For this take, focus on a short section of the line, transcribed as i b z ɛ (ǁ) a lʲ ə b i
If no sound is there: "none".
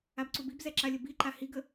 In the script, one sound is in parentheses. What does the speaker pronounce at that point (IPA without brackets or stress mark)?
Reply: ǁ